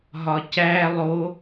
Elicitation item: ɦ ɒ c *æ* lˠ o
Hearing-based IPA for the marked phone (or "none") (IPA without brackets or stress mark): æ